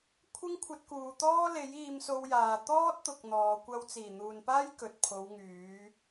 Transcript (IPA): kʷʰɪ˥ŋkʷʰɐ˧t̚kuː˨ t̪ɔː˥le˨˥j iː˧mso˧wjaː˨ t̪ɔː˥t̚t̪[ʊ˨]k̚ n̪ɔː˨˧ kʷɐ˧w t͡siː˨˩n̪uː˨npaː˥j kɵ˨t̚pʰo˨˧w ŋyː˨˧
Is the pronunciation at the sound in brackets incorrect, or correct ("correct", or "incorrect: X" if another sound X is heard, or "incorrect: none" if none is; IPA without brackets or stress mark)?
correct